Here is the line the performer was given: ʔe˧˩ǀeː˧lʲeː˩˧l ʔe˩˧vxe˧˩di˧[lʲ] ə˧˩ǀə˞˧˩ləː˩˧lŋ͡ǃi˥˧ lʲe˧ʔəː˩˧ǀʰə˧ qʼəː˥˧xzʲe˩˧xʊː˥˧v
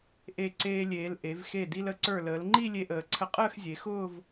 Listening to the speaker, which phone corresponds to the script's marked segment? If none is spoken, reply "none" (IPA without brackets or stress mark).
l